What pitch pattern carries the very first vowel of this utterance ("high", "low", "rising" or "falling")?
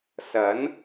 rising